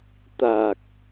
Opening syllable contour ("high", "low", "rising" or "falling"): low